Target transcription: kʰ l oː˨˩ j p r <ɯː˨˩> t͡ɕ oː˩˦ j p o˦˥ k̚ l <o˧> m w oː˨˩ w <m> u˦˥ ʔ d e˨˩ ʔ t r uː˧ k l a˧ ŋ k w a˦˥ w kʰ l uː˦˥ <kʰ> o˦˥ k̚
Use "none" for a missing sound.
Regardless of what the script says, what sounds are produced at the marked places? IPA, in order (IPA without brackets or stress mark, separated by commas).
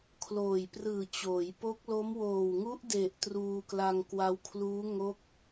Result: ɯː˨˩, o˦˥, ŋ, ŋ